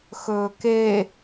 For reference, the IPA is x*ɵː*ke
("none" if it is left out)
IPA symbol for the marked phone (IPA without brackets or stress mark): ɵː